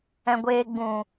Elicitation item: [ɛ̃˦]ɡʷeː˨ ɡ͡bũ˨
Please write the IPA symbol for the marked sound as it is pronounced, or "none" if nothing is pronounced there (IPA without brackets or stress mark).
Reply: ɛ̃˨